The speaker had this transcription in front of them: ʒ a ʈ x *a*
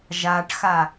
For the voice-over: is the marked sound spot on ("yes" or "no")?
yes